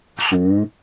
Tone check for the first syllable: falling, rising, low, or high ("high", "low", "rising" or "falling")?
rising